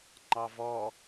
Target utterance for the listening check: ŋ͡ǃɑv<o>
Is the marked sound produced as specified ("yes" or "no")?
no